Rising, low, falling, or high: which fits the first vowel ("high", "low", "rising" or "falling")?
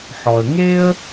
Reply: low